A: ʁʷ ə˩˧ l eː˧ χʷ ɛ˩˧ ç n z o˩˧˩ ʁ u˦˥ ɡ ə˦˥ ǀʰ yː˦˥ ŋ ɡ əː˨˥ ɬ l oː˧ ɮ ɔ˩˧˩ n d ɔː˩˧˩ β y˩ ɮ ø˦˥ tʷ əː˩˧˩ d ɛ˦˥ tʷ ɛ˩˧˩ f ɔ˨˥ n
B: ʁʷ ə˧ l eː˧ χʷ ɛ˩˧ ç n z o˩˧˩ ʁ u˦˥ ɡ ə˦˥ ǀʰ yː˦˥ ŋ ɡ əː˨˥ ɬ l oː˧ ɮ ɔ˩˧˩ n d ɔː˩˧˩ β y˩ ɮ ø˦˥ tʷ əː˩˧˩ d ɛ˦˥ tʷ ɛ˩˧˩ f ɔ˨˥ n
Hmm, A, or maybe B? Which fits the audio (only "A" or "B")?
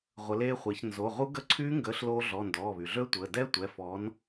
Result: A